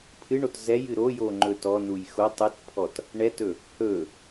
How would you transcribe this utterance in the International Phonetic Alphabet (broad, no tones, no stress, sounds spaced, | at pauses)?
pʰ ɨ ɳ o t z ɛ j ɨ ɾ o j o ŋ͡ǃ ɵ t ɔ n u j x o tˤ ɨ t pʰ ɔ t | ɳ ɛ t ɵ | h ɵ